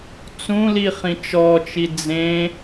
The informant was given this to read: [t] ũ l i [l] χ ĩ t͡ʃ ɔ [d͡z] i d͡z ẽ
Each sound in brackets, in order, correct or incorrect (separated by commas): incorrect, incorrect, incorrect